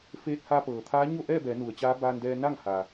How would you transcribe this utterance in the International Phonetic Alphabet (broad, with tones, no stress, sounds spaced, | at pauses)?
f eː˧ t̚ h a˧ p ɤː˩ t̪ʰ aː˧˥ ɲ o˥˨ ʔ ɛː˥˨ b ɛː˩˧ n u˩˧ ə̯ t͡ɕ aː˧˥ b aː˧ n d ɛː˧ n a˥˨ ŋ h a˩